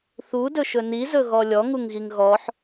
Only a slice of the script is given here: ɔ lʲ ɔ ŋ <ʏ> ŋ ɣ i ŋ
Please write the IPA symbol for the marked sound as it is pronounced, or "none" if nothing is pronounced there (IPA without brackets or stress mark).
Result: u